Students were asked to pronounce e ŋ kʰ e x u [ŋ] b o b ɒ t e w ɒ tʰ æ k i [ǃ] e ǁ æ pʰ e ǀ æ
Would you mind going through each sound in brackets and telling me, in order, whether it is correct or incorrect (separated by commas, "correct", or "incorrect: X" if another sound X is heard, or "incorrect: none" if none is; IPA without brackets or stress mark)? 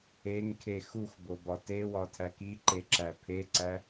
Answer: incorrect: x, correct